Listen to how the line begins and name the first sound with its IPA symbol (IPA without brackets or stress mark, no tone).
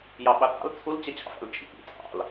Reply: j